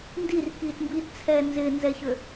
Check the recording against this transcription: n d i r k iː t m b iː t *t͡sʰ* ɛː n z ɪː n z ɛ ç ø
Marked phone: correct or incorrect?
correct